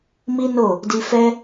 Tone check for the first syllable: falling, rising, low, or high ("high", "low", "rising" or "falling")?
high